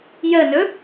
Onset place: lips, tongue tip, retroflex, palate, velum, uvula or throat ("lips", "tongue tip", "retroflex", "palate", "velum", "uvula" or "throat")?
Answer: palate